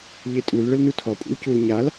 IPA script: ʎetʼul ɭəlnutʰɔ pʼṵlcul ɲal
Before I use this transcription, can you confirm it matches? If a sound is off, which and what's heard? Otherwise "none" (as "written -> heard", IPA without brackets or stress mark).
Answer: none